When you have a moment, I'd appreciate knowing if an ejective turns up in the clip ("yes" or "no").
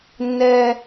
no